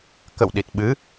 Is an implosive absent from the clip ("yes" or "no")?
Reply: no